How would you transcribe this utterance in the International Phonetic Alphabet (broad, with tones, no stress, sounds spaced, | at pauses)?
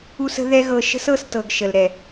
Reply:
u˧ s ə̤˧ ð ɛ˦ ɣ ɤ˧ ʃ ə̤˦ s ɤ˦˨ s t ɤ˨ ɡ ʃ ə˨ l ɾ ɛ˨